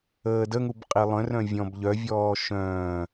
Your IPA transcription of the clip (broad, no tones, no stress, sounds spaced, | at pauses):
əː d ə ŋ u b qʼ i lˠ œ̃ r œ̃ vʲ ɔ̃ b ʎ œ vʲ ɔː ʃ œ̃ː